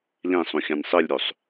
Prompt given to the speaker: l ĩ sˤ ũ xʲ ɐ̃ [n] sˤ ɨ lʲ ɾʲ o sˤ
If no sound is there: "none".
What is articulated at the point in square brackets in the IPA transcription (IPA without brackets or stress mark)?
n